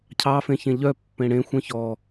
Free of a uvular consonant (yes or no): yes